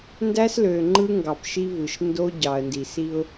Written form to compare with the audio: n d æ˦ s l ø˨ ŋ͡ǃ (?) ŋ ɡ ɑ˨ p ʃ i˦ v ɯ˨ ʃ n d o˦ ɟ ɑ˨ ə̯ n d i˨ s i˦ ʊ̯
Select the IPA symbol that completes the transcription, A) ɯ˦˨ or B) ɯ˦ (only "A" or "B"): B